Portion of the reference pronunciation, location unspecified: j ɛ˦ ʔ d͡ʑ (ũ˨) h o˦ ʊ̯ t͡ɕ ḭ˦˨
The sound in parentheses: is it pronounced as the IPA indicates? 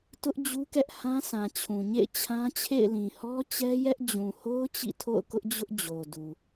yes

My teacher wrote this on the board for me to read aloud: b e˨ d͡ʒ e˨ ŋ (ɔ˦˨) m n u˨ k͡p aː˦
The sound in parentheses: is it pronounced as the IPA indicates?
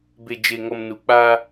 no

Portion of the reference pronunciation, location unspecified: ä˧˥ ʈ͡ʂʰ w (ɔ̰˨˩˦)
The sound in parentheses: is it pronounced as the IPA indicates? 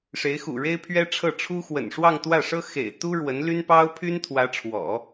yes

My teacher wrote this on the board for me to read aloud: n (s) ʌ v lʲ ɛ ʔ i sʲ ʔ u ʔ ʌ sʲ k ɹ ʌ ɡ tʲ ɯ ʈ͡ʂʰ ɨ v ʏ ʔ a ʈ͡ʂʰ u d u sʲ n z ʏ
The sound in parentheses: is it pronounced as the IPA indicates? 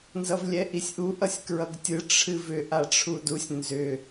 no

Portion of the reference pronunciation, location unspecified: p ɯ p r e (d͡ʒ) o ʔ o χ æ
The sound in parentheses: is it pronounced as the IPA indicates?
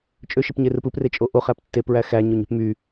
no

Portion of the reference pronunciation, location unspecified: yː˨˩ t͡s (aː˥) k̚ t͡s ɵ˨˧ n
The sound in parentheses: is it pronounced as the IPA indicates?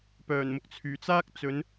yes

